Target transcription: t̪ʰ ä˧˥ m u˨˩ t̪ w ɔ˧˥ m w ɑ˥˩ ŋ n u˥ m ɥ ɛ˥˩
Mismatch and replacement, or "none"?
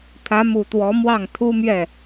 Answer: n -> t̪ʰ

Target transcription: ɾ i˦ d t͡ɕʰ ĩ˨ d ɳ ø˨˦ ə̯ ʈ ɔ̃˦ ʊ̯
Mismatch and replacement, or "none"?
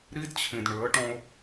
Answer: none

